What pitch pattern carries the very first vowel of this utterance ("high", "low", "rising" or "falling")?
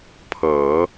low